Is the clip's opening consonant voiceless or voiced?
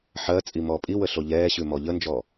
voiceless